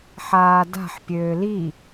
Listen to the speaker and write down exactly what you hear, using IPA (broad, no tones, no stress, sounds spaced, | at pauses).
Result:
ħ aː d a̤ ħ pʲ øː l i